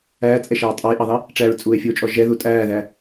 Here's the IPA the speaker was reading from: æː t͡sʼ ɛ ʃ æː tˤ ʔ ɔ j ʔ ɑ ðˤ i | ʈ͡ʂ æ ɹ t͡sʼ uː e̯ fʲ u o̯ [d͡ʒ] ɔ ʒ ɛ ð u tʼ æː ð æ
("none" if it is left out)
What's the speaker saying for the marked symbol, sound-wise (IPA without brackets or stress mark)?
t͡ʃʼ